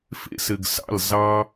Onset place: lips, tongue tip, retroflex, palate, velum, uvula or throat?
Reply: lips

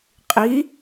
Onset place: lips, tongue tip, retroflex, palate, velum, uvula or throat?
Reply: uvula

